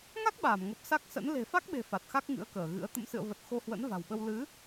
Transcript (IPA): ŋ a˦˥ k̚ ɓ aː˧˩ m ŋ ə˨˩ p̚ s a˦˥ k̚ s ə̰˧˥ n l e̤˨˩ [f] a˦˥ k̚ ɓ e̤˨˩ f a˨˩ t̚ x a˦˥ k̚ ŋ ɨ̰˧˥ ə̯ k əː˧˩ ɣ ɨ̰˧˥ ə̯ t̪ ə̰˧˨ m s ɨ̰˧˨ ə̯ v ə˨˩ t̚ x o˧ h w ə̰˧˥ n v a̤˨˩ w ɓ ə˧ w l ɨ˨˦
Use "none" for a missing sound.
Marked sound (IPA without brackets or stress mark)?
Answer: f